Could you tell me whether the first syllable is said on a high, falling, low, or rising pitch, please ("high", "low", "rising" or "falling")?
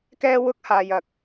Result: high